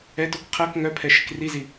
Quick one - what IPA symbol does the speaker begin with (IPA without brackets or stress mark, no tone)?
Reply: ɛ